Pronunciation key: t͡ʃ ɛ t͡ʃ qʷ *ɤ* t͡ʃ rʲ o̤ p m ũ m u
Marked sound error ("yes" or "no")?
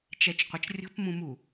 no